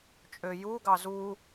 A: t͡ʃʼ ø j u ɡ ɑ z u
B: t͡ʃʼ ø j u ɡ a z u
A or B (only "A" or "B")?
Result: A